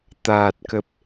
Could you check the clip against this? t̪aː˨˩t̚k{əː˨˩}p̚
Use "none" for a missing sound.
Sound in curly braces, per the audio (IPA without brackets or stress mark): ə˨˩